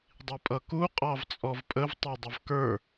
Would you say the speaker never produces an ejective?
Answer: no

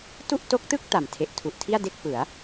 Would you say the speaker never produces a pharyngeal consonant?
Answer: yes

